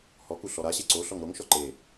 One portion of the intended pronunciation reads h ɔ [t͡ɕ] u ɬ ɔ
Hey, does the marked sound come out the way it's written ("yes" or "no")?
no